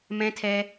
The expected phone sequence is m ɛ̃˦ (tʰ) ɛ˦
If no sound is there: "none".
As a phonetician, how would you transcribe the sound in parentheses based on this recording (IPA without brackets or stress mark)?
tʰ